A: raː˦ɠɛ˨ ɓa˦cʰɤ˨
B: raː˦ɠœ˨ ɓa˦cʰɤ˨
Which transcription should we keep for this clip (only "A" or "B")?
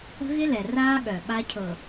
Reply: B